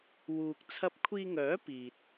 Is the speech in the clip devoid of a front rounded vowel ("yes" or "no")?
no